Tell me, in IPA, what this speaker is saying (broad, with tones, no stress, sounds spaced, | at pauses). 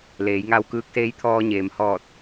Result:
l eː˩˧ j ŋ a˧ w k ɯː˧ k̚ s eː˧˥ j t̪ʰ ɔː˧ ɲ eː˩ m h ɔː˧˩ t̚